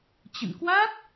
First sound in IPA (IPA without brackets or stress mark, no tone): t͡ɕ